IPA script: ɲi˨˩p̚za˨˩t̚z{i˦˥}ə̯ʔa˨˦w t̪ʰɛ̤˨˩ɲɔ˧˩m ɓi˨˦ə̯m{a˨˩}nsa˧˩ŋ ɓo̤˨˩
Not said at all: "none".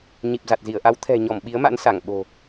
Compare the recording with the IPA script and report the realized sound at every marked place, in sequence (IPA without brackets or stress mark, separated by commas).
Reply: i˧˩, a̰˧˥